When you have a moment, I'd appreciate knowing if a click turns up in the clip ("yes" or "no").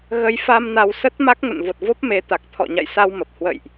no